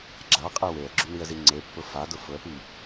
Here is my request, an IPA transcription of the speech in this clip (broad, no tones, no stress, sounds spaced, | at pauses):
ɡ͡ǁ a qʼ e w e ə̯ ɡ͡ǁ ʊ n i ə̯ z i ŋ͡ǀ e pː ʊ f a d ʊ f ʊ ə̯ p i